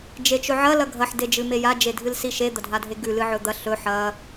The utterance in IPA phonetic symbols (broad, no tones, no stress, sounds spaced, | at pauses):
d͡ʒ e t͡ʃ ɵ ʕ ɐ l ɐ ɡʱ ɐ ħ d e d͡ʒ ɨ m e j a d͡ʒ e dʱ ɨ l s i ʃ e d̪ ɐ dʱ a dʱ e ɡ ʉ l ɨ ʕ ɵ d̪ ɐ ɬ ɵ ħ ɐ